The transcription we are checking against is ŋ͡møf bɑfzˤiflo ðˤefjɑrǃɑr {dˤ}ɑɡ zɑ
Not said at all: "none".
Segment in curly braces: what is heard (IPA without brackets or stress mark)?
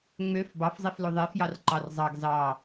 zˤ